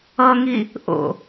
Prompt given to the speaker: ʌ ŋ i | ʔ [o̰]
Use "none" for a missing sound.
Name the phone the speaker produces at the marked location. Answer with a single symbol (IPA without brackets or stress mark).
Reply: o̰